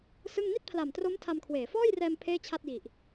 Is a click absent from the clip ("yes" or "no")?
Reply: yes